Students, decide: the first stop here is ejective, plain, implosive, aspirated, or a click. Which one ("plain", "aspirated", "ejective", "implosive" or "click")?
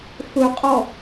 ejective